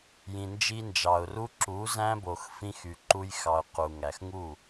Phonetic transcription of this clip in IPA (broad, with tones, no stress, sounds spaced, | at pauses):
j ĩ˨ n d͡ʒ i˧ n d͡ʒ ɑ˨ ʊ̯ r u˦ ǁ u˨˦ z æ̃˦ b o˨ x f ĩ˧ x y˨ ǃ u˧ j x ɑ˨ ʊ̯ q u˨ ŋ æ˨ x ŋ u˦˨